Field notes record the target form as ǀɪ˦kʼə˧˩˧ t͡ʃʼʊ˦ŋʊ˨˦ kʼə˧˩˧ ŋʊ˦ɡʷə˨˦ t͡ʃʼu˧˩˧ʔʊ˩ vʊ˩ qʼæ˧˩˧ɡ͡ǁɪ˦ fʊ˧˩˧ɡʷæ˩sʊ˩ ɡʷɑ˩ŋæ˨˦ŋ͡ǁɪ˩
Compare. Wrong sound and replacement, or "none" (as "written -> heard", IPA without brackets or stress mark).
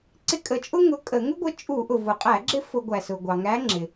none